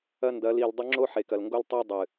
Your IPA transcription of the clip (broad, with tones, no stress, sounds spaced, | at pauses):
ɐ˦ n d ɐ˨˦ l i˨ l dˤ ɵ˦ ŋ͡ǁ o˦ ħ e˨ k ɐ˨ l ŋ ɡ o˦ l tˤ o˦ dˤ ɨ˨